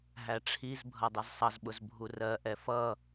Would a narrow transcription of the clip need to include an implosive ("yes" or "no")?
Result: yes